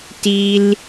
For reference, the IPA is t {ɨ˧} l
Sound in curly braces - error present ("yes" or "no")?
yes